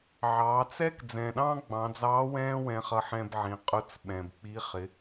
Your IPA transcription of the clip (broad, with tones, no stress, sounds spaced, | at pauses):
ʕ ɑː˩˧ t͡s ɛ˥ k d͡z ɛ̃ː˩ ɗ ɑ̃ː˥ ɡ͡b ɑ̃˩˧ d͡z ɑː˧˥ w ɛ̃ː˥ w ɛ̃˧ χ ʌ˧ ħ ɛ̃ː˧ b ʕ ĩ˩˧ qʼ ʊ˧ t͡s ɓ ɛ̃˩ b k͡p i˧˥ χ ɪ˩˧